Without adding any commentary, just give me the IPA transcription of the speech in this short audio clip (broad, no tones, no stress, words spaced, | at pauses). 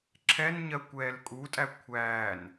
ǁʰɛnɲɜ kʷɛːlkʼutʼæ kʷʰæːn